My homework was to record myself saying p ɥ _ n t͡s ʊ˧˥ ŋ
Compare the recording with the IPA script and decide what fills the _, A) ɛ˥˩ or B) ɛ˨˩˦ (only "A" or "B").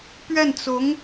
A